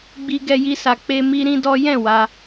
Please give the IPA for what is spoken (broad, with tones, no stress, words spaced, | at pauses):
ɡ͡bi˦ɡɛ˦ji˦sa˧ k͡pe˦mi˦ ɾĩ˦dɔ˦ jɛ̃˦˨ wa˧